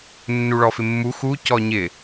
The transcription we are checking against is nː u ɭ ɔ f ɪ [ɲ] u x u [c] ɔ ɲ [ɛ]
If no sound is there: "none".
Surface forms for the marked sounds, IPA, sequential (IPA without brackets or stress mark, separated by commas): mː, c, ɪ